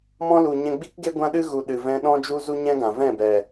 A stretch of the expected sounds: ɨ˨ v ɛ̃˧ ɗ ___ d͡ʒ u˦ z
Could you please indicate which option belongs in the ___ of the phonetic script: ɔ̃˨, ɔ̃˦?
ɔ̃˦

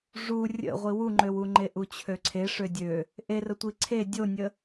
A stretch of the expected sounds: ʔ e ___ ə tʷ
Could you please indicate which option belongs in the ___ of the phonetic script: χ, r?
r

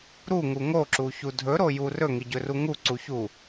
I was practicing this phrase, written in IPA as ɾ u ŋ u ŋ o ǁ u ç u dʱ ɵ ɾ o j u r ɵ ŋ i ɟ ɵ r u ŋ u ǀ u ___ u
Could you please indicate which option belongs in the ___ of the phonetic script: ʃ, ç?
ç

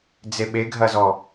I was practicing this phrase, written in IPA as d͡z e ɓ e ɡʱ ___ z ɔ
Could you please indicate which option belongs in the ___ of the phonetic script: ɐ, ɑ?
ɐ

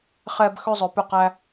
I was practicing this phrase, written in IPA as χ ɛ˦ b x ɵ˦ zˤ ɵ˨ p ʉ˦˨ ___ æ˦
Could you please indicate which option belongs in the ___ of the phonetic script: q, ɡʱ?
q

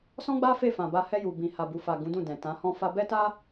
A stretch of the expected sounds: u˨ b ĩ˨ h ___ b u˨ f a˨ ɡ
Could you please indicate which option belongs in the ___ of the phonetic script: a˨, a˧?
a˨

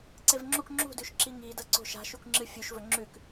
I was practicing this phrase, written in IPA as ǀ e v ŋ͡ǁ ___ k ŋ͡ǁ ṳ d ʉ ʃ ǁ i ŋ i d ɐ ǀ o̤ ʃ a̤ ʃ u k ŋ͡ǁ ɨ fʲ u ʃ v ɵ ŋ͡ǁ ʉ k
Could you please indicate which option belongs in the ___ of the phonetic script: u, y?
u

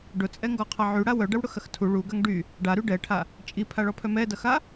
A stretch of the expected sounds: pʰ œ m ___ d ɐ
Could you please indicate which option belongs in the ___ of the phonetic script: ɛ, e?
ɛ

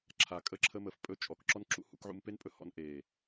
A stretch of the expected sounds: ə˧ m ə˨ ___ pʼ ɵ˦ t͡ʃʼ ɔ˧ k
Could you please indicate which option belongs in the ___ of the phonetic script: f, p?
f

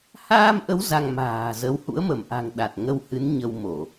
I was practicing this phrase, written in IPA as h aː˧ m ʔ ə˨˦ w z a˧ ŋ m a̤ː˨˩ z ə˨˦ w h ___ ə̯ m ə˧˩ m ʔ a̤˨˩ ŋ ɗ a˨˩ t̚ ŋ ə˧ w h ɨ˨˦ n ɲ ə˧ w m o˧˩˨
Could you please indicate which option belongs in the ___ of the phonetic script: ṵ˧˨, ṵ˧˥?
ṵ˧˥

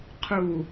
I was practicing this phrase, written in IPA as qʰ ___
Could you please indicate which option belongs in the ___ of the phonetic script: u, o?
u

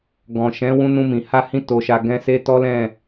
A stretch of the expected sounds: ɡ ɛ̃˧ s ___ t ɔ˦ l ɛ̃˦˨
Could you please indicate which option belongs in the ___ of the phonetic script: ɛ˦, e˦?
e˦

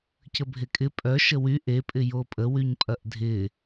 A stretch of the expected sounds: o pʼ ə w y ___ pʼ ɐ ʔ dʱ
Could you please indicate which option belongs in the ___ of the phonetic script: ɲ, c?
ɲ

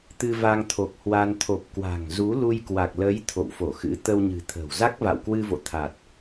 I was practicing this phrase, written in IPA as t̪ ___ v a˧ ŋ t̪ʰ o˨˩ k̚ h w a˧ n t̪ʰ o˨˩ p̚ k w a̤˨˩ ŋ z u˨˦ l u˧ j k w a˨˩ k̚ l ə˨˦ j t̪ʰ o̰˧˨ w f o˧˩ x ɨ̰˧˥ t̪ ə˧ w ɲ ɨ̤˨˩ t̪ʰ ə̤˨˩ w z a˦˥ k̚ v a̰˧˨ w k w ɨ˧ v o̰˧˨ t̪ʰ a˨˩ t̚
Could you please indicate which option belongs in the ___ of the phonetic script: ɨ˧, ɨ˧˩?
ɨ˧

